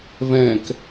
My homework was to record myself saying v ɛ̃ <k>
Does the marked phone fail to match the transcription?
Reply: no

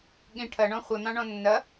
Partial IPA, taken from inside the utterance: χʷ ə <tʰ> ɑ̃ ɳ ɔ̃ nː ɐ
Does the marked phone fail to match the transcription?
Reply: yes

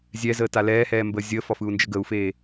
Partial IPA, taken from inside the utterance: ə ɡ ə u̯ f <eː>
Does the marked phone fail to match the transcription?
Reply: no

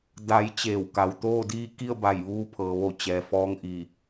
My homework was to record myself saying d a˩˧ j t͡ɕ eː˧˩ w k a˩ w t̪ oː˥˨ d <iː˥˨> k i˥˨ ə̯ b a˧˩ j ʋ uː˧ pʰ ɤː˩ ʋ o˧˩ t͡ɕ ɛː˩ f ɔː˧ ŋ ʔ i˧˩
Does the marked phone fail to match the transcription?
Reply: no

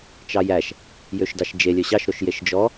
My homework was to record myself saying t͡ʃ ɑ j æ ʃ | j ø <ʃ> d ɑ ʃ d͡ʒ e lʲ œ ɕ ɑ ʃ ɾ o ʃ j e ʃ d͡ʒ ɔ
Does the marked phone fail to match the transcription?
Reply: no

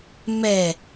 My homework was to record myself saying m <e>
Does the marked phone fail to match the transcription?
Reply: yes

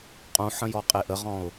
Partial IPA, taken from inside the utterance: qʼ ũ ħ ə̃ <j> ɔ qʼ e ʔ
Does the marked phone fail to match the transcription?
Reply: no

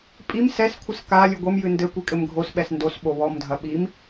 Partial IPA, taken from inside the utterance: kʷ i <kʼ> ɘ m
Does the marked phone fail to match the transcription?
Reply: no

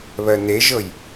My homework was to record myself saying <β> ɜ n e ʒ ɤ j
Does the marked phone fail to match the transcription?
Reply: no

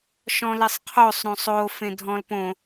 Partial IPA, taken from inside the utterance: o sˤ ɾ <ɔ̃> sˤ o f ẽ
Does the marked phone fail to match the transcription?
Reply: yes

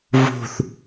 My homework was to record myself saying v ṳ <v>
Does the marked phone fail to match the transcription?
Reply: yes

